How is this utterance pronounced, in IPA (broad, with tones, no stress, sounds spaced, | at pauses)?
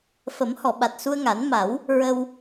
f ə˨˩˦ m h ɔ˨˩˨ ɓ a˨˩ t̚ s u˧ ə̯ ŋ a˨˩˦ n m a˨˩˦ w | ɹ ə˧ w